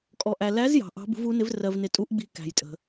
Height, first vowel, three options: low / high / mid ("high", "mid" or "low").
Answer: mid